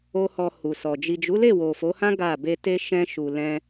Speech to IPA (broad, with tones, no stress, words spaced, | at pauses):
o˦hɔ˧ hu˨sɔ˨ d͡ʒi˨d͡ʒu˨˦le˦˨ wo˨fo˨˦hã˦ ɡa˦˨ be˧te˦ ʃɛ̃˧ʃu˨lɛ̃˧